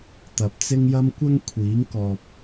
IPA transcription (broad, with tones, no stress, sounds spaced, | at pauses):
t̪ ɐ˨ p̚ t͡s ɪ˥ ŋ j ɐ˥ m kʷ ɐ˥ ŋ kʷʰ iː˨˥ ŋ k ɔː˨ p̚